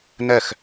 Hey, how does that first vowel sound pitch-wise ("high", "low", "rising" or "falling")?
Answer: falling